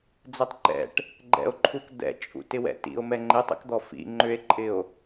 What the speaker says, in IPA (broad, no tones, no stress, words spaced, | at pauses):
d͡zɛtˤǃɛ̰ʈ | ɡ͡ǃɛ̰o̯ǃʰuk d̪ɛ̰t͡ʃʼṵ tɪwɛ̰tḭo̯mɛ ŋ͡ǃɪtˤḭkd̪ɔ fḭ ŋ͡ǃʏe̯ǃʼɪo̯